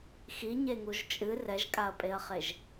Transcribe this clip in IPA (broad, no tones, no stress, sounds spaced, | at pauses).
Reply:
x i ɲ e ŋ u ʒ t͡ʃʼ ɨ r ɛ ʒ kʼ a ɐ̯ pʼ e ɐ̯ χ e ʒ